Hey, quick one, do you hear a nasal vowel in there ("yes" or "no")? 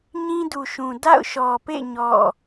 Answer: yes